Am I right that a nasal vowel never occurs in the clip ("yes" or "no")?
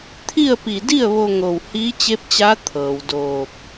yes